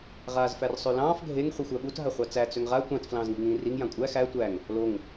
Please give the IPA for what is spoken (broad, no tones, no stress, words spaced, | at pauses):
ʁaːzfærsˤølɑ̃ːf ɡʱeŋ χʷixʷæɓut ɦaχʷɑt͡sæ t͡søŋʁa tʷɑ̃t flɑ̃ːzŋi̤ŋĩːriŋ jãkʷʼæ xæ tʷæŋ | loŋ